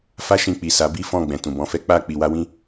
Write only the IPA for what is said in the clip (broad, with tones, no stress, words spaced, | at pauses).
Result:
fa˦ʃĩ˧k͡pi˨sa˨˦ bi˦fɔ̃˦˨ ɡ͡bɛ̃˨tũ˨bɔ̃˧fɛ˦ k͡pa˦˨ k͡pi˨wa˧wĩ˦